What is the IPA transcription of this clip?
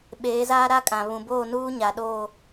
ɓeː˨˦zaː˦ɾa˦kʼã˨ βũ˨boː˦˨nuː˦ ɲa˨ɗoː˦˨

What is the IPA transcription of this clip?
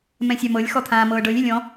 mɛ̃sʲamɤlʲ xɔt̪ʰãːmɤːɖɤlʲ elʲɔ̃

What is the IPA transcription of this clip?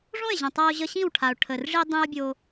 ʐõ˦˨e̯ʑə̃˨tˤa˧o̯ ʑə˧ɕĩ˦˨w ʈʰa˨o̯ʈʰə˨r ʐi˧dˤĩ˧o̯bʲo˧

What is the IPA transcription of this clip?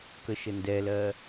kəʃəndɛlɜ

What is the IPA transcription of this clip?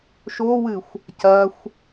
ʃowɨxʷ | cɐxʷ

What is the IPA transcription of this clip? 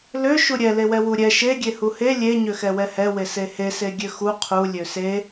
lø ʃuɾʲɛ lewɛwuɾʲɛ ʃe ɡʲehuhe lʲe ɲøxɛwɛhɛ wesehe seɡʲøxu qʰu lʲøse

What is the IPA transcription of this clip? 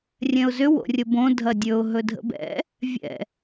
rʲɛ̃ʊ̯zʏ wo̰rʲəbõ dʱɐdʲɵʊ̯ ɦɵdʱə̰bɛ̰ | vʲɛ̰

